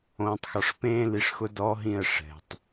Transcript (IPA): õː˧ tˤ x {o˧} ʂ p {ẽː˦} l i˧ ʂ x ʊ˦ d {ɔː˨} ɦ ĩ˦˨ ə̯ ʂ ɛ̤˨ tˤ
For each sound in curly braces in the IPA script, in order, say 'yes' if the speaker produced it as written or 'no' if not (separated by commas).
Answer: no, yes, no